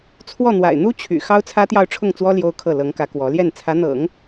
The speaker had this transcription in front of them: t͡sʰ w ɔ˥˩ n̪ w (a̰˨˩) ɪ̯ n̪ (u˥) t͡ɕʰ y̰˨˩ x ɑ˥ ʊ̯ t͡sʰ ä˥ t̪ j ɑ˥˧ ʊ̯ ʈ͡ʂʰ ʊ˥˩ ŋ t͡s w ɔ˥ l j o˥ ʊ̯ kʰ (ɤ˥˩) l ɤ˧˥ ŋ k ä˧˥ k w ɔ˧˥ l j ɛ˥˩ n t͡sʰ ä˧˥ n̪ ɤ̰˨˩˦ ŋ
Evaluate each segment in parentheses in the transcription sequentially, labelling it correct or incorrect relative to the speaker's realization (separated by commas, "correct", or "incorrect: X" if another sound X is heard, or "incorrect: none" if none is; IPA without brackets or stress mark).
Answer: correct, correct, correct